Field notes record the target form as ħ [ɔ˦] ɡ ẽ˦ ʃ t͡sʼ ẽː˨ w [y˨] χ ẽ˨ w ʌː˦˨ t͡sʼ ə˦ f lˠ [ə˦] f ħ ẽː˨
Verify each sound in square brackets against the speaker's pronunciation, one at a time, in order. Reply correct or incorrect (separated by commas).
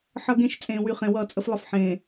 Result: incorrect, correct, correct